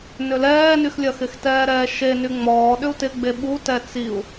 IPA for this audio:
n ʏ l ɛː n y x lʲ ɐ x ɪ x t ɛː ɾ ɛː ʃ e n y ŋ͡m ɔː ɗ ʏ u̯ t ɪ ɡ͡b e ɓ u t ɛ t͡s i u̯

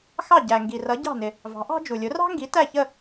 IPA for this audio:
x ɑ˥˩ ɟ æ˩ ŋ ɡ i˩ r ʌ˩˥ ɟ ɑ̤˥˩ n ɪ˩ | v ɑ̤˩˥ ʔ ɑ̤˥ d͡ʒ u˩ lʲ ʊ˩˥ r ɑ̤˥ ŋ ɡ i˩˥ t æ˥˩ ç ə˥˩

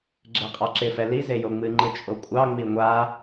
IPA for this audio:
ɡ͡ǁ e qʼ ɑ ǁ ɪ f ɛ l i z e j o ŋ͡m ɨ ŋ͡ǃ ɨ t͡ʃʼ o kʷʼ ɑ ŋ͡m i ŋʷ a

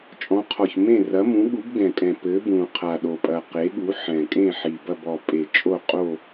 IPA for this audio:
t͡ʃʼ ɔ̃˨˥ qʰ ɔ˨˩ ç m ẽ˥˨ r ɐ˨˥ m ũ˨˥ ɠ u˨˥ b ɡ ɛ̃˨˩ kʼ ɛ̃˨˩ p ɘ˨˥ b ũ˨˩ qʰ a˨˩ ɗ o˨˩ pʼ ɐ˨˩ q e˨˥ ɠ u˨˥ ħ ɛ̃˨˩ kʼ ẽ˥˨ ħ i˨˩ b ɐ˥˨ b ɔ˨˩ pʼ e˨˩ t͡ʃʼ o˥˨ qʼ o˥˨

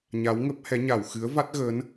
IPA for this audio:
ɲ a˨˦ w ŋ ə˦˥ p̚ h ɛ˨˦ ɲ a˧˩ w x ɨ˨˦ ə̯ v a˦˥ t̚ ɣ əː˨˦ n

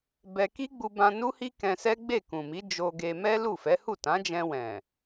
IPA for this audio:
b ɛ˧ k i˦ ɡ͡b u˧ b ã˧ n u˦ h i˦ k ɛ̃˧ s ɛ˦ ɡ͡b e˦˨ k ũ˨ m i˨˦ d͡ʒ o˧ ɡ e˧ m ɛ˦ l u˦˨ f ɛ˨˦ h u˦˨ t ã˨˦ d͡ʒ ɛ̃˧ w ɛ̃˨

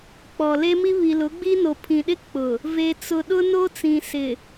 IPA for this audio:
k͡p ɔ˨ l e˦ m i˦ β i˨ l ʊ˨˦ ɡ͡b i˦ n o˨ pʰ ĩ˨ ɗ ɪ˦ k͡p ʊ˨ | v e˨ t͡s ʊ˨ ɗ ʊ˦ n o˦ t͡s ĩ˨ s ɪ˨

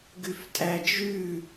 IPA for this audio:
ɡ ʉ f tʼ æ d͡ʒ ʉ

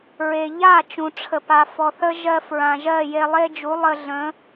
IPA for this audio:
ɹ e˨ ʎ a˦˨ t͡ʃ ũ˨ ʈ͡ʂʰ ə˨ p a˨ f ɔ˨ θ ə˦ ʒ ɜ˧ f ɹ ã˨ ʒ ɜ˦˨ j e˧ lˠ e˦ d͡ʒ u˨˦ lˠ ə˧ ɮ ə̃˨˦

